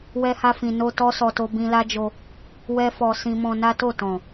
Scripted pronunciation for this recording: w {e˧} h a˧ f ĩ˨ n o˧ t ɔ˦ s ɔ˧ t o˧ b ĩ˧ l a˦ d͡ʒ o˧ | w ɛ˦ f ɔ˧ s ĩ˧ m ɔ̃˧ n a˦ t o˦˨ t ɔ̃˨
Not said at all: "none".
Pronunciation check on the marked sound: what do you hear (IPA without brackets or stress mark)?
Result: ɛ˧